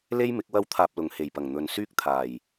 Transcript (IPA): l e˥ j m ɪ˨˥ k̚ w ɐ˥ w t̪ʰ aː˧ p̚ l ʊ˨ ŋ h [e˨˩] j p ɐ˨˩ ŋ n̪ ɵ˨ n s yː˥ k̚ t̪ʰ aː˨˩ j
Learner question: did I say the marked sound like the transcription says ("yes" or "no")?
yes